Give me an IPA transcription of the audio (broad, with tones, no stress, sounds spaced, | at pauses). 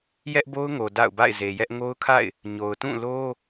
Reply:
j ɛ˦ ʔ b o˦ ʊ̯ ŋ o˨ d a̰˦˨ ʊ̯ b a̰˦˨ ɪ̯ z e˨ j ɛ˦ ʔ ŋ o˦ ʊ̯ kʰ a̰˦˨ ɪ̯ | ɲ o˨ ʊ̯ t ũ˦˨ l o˦